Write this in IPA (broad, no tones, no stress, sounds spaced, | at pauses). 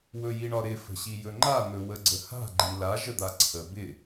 w ɵ j i ɳ ɒ ɾ ɪ f ə̤ ɕ i j ɵ ŋ͡ǃ a n̪ ɵ w ə ɡ͡ǀ ə h a̤ ɡ͡ǃ i l a ʒ ə d̪ a ǀʰ ə b ɪ